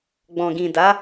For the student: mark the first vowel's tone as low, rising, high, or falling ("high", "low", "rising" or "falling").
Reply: low